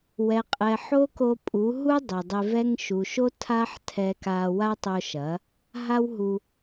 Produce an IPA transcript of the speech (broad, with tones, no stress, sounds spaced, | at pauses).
w ɛ˨ qʼ ɛ˨ ħ o˦ k o˧ pʼ u˨˦ ɦ u˦ dˤ e˨ dˤ e˧ v ɛ˦ ŋ ʃ u˨ ʃ o˦ tʰ a˦ ħ tʰ ɛ˦ k a˦ w a˦ tˤ o˧ ʃ ɐ˨˦ | ɦ a˦ w ɦ u˧